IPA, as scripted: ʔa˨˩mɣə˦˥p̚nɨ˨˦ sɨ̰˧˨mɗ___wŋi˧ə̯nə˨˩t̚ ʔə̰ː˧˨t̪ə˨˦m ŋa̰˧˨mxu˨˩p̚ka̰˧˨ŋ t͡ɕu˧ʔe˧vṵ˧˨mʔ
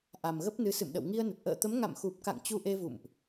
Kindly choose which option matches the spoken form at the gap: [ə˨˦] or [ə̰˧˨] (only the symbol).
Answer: ə̰˧˨